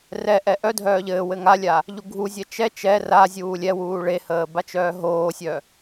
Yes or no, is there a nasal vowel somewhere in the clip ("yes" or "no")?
no